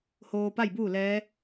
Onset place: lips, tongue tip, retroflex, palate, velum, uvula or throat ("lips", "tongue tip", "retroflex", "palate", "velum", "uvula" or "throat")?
throat